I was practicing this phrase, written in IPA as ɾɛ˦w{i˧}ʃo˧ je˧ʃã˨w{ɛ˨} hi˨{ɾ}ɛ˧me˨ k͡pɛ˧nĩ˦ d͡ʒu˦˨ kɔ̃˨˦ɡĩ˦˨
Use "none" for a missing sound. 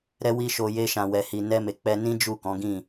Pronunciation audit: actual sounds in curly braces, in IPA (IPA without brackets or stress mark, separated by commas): i˦, ɛ˨, n